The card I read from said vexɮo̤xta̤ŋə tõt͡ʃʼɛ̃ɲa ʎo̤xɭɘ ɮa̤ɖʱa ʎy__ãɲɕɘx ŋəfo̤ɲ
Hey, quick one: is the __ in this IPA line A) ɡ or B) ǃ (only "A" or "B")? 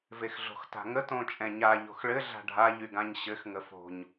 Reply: A